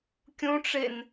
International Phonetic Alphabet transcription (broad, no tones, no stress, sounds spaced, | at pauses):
kʲ ũ ʈ͡ʂ e n